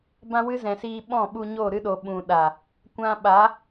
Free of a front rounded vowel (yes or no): yes